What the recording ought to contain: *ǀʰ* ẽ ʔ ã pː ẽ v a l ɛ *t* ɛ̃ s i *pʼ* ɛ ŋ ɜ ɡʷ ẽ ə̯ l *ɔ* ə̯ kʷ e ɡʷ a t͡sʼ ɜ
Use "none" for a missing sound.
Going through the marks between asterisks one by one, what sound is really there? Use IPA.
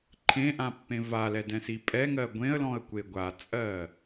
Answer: ǃʰ, d, pʼ, ɔ̃

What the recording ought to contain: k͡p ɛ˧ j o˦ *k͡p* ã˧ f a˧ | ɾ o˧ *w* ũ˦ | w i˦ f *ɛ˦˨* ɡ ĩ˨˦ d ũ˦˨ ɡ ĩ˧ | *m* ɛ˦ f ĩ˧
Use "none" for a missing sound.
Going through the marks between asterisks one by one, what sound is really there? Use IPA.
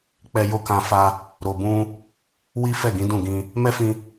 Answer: k, b, ɛ˦˨, m

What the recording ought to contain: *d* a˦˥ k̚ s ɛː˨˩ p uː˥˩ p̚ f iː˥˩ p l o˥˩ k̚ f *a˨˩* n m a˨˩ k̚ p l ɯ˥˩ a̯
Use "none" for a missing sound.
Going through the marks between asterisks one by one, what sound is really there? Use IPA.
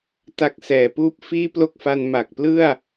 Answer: t, a˧

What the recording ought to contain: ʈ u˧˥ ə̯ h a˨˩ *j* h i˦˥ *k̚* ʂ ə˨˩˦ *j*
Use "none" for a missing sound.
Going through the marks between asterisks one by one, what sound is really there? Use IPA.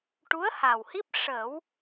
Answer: w, p̚, w

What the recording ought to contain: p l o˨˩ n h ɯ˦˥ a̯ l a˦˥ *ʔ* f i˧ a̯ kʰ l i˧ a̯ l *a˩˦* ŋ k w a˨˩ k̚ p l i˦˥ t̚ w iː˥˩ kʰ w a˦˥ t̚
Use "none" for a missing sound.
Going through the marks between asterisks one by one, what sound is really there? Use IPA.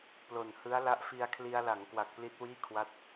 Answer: ʔ, a˩˦

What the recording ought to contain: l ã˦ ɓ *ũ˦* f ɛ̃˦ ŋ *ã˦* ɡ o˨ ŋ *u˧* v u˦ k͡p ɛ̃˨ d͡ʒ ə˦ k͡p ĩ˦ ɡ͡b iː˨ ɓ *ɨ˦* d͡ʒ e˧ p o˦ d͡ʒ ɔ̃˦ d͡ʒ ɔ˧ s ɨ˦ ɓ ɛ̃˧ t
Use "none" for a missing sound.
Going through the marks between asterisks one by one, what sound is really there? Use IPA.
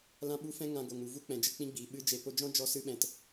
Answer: u˦, ã˧, u˨, ɨ˦

